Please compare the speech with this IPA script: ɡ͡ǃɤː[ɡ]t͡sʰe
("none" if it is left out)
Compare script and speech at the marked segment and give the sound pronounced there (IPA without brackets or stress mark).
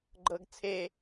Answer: ɡ